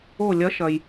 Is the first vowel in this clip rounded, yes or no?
yes